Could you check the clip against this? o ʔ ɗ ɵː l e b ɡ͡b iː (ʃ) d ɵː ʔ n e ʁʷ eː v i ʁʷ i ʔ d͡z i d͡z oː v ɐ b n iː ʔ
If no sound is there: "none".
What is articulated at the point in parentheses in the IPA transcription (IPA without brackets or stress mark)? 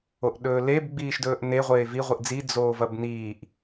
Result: ʃ